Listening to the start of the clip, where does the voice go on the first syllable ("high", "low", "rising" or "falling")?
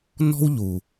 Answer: high